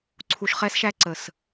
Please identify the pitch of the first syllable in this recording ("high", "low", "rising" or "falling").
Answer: low